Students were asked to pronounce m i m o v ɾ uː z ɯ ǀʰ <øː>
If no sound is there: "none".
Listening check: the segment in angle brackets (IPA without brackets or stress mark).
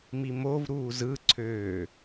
øː